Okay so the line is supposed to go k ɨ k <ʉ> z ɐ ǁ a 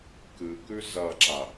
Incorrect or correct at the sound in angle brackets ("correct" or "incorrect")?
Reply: correct